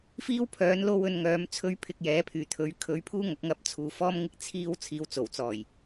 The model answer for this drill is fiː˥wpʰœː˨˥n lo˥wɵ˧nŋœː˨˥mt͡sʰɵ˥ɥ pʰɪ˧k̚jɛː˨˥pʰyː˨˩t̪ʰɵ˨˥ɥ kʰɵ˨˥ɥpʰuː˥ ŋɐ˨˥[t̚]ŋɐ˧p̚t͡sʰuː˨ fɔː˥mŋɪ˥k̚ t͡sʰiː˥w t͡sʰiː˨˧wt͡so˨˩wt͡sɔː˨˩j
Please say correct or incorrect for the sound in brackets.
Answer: incorrect